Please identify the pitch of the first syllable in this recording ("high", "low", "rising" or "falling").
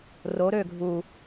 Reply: rising